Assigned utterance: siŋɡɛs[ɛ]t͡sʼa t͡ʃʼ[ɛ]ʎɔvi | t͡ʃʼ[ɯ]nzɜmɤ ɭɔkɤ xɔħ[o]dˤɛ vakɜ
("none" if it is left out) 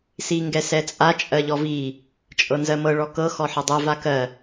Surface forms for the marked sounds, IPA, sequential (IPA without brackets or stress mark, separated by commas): ɛ, ɜ, ɤ, ɤ